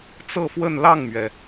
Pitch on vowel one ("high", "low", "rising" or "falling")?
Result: falling